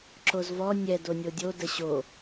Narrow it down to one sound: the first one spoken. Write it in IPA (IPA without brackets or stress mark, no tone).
ǁ